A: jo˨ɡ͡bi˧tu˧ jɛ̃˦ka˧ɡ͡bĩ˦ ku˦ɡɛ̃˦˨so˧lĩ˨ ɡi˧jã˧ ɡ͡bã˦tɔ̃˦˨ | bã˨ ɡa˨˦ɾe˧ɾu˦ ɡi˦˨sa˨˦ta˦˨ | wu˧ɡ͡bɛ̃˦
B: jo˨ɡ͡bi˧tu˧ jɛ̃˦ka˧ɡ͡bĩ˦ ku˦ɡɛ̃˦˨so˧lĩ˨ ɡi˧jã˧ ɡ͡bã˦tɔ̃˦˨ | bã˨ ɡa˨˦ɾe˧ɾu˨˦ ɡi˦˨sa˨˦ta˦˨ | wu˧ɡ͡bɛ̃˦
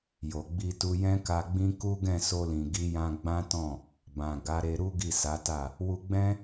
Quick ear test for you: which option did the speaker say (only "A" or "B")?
A